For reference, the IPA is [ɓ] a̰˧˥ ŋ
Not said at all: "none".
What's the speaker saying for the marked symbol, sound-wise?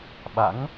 ɓ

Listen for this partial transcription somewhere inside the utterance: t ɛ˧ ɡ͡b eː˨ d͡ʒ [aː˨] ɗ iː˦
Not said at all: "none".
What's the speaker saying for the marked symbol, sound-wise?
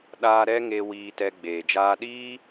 aː˧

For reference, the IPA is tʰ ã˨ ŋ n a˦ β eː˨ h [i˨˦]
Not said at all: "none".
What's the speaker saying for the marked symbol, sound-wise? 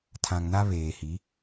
i˨˦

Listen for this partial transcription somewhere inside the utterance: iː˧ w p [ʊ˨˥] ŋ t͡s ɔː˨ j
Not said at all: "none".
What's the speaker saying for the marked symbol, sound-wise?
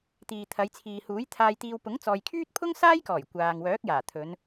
ʊ˨˥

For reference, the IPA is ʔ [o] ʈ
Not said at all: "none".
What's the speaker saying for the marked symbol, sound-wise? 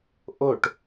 o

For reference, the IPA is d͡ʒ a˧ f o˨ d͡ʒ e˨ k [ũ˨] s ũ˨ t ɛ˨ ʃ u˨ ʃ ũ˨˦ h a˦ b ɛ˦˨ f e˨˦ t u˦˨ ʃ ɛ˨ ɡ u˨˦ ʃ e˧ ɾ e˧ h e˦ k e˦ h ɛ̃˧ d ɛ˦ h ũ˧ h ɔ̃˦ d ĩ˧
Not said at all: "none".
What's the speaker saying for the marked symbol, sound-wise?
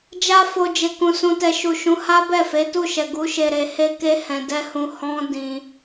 ũ˨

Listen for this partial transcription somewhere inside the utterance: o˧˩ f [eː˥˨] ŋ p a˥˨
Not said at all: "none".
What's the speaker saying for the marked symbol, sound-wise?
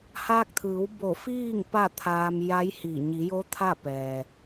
iː˥˨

